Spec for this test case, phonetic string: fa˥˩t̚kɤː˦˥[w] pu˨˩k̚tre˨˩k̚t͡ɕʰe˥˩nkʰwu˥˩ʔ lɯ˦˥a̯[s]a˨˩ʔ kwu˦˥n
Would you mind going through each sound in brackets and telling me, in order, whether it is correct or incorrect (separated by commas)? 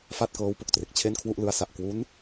correct, correct